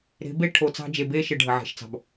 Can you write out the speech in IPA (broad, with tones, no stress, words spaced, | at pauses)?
ɾe̤˨˦be˦ ʈʰo˨t͡sɑ̤˦ d͡ʒe˨be˦ʃɘ˨ ɖʱə˨ʕe̤˨ʃt͡sɑ̤˨b